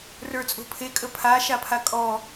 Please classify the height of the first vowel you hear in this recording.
mid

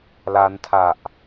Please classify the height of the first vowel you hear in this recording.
low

